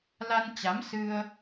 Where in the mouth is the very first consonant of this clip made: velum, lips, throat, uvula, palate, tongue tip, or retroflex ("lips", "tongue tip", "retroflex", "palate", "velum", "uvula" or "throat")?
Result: tongue tip